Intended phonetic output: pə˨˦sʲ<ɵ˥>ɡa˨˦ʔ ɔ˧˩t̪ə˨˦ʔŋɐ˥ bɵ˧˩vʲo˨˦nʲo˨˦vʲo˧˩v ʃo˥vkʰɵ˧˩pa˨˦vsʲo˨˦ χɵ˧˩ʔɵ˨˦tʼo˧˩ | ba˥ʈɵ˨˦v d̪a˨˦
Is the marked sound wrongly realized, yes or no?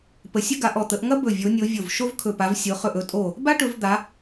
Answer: no